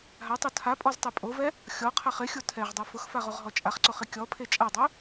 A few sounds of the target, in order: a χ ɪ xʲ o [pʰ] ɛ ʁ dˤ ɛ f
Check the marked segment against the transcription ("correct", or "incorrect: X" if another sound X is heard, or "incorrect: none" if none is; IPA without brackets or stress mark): incorrect: tʰ